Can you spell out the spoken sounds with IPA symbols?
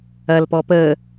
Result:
ɐ l p ɔ p əː

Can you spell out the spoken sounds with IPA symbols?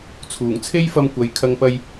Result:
t͡sʰ uː˨˩ ŋ t͡sʰ e˥ j f ɐ˧ m kʷ ɐ˨˧ j kʰ ɐ˨ ŋ p ɐ˨ j

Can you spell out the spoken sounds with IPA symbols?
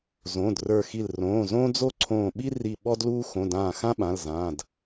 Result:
z õː˩˧˩ d r ə˞˧˩ x i˧˩ l r õː˩˧˩ z õː˥ d͡z o˥ ǀʰ õː˧˩ ɓ i˥ r i˧˩ ɓ ɔ˥ d l uː˥ x õ˩˧˩ d ãː˧˩ x ã˥ ɓ ã˩˧˩ l z ãː˩˧˩ d

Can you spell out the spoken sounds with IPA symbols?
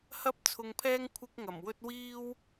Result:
h ɐ˥ p̚ t͡sʰ ʊ˧ ŋ pʰ ɛː˥ ŋ kʷʰ ɪ˥ k̚ ŋ ɐ˨˩ m w ɵ˥ t̚ w iː˥ w

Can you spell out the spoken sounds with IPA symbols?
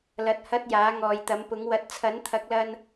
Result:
l ɐ˨ t̚ h ɐ˥ t̚ j aː˨˥ ŋ ɔː˨ j t̪ ɐ˨˥ m p ʊ˨˥ ŋ w ɐ˨˥ t̚ t͡sʰ ɐ˨˥ n t̪ʰ ɐ˨˥ k̚ l ɐ˧ n

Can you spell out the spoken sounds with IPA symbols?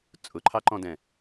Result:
t͡sʼ ʊ ǃʰ ɑ ǃ ɔ̃ d ɛ̃

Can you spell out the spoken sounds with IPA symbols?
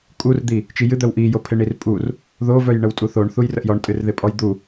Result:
kʼ u r d̪ i | t͡ʃ i j ɨ d̪ œ w ʔ i j o pʰ ɪ ɳ i r pʼ u r | ð o v œ j ɳ ə w tʼ u θ o ɳ θ u j r ə ʔ j ɔ ɳ tʼ ɨ r ð ɪ pʼ ɔ j d̪ u

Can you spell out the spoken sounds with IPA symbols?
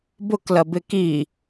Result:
b ʊ k l ɐ b ɪ k i

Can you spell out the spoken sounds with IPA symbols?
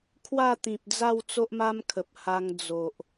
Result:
kʰ w a˥˧ t̪ ĩ˨ p̚ d͡z a˥˧ w t͡s o˦ ʔ m a˦ m kʰ ə˨ p̚ h a˧ ŋ d͡z o˨ ʔ

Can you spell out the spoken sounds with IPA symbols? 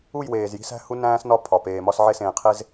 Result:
u˦˨ j w eː˨ z j i̤˦ s æ̤˦ h u˦ n æ̃ː˦ s n ɒ˦ pʰ ɒ˨ p eː˨ m ɒ˦ s ʕ e˦ s ẽː˨ qʰ e˦ z

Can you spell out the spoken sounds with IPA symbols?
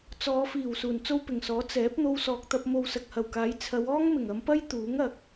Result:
t͡s ɔː˨˧ f iː˨˩ w s uː˨˩ n t͡s o˥ w p ɪ˨˩ ŋ s ɔː˨˥ t͡s ɛː˨˥ p̚ n̪ o˧ w s ɔː˨ k̚ t̪ ɐ˧ p̚ m o˨ w s ɐ˨ k̚ h ɐ˨˩ w k aː˨˥ j t͡sʰ ɐ˨˧ w ɔː˥ ŋ m ɪ˨˩ ŋ ɐ˨˧ m p ɐ˥ j t̪ uː˨˥ ŋ ɐ˨ k̚

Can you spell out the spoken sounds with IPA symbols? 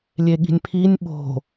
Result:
lʲ e ɠ i̤ nʲ pʰ i nʲ ɓ o̤

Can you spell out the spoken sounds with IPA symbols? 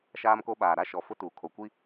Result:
ʃ aː˦ m k o˦ ɓ aː˨ ɾ a˦ ʃ ɔ˨ f ʊ˦ t uː˨ kʰ o˨ kʷ i˦

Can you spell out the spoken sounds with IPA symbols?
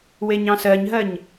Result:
w e ɲ ɑ̃ s ɜ ɲ ɦ ɜ ɲ

